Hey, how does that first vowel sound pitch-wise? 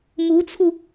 rising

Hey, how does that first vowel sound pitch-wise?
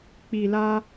low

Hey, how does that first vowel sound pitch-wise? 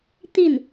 falling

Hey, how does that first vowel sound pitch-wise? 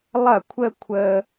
falling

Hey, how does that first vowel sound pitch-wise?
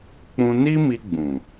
high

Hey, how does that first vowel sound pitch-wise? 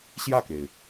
falling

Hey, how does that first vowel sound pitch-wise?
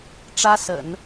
high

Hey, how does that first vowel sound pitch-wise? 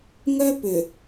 high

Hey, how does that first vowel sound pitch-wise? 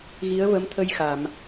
rising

